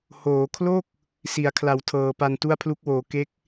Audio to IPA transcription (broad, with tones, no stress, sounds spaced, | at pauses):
h oː˩˦ kʰ l o˥˩ k̚ | s i˩˦ a̯ kʰ l a˩˦ w tʰ ɤː˩˦ p a˧ n t u˥˩ a̯ pʰ l u˦˥ k̚ w oː˩˦ k e˦˥ k̚